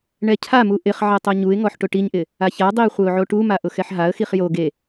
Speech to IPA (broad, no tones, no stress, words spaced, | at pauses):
ɳɛcʰamu ʔɪχ ʕɛtˤoɲuɪ̯ŋɔħ ʈʊʈiɲʔɪ | açadˤiə̯ χʷeʊ̯ʕoʈuma ʔʊxɛħɦaə̯xiχ jo ɡe